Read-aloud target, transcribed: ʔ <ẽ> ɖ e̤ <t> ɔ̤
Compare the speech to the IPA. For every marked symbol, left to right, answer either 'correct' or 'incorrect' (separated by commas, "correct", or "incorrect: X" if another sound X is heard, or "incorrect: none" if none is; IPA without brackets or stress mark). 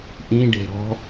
incorrect: ĩ, incorrect: ɾ